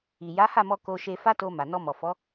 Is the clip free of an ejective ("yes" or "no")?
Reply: yes